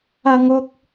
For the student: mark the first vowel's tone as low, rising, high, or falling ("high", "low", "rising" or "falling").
high